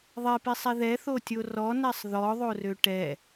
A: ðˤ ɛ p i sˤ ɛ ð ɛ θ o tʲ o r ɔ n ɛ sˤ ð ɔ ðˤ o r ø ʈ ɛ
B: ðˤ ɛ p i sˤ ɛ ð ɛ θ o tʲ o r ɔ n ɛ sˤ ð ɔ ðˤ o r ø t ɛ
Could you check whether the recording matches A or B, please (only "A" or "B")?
A